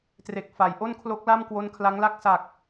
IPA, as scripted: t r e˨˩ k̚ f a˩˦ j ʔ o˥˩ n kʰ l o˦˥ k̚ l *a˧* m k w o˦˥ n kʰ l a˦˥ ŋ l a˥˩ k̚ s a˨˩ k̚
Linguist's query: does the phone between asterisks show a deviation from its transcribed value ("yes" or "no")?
yes